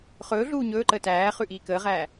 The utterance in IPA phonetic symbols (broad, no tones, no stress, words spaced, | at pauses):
χɵː ɮuːɲɵːǃəː tæːχʉ ʔiːkəːʁæː